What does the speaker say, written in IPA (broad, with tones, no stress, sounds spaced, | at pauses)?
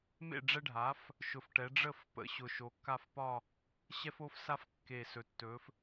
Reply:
m ḛ˥˨ ɖ͡ʐ ɛ˦ ɖʱ a˩˥ f | ʃ ʊ˨˩ f ʈ ɛ˩˧ ɖ͡ʐ ə˥˨ f p ə̰˩˥ ɕ ʊ˨˩ ʃ o˩˧ kː a˥˨ f p ɒ˥˨ | ɕ ɛ˦ f o˦ f s a˦ f kː e˨˩ s ɵ˩˧ tː ɵ˩˧ f